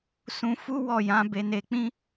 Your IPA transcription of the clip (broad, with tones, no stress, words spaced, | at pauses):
sũ˧fu˦wɔ˦˨jã˨˦ be˧ne˧k͡pĩ˦